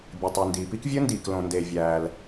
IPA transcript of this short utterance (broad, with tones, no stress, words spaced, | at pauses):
bʲɯ˩tˤy˩ndiː˩pi˥k vʲɯ˥ndiː˩klõ˩nde˩ vʲæː˩l